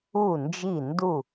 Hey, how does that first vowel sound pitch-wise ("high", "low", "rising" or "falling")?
falling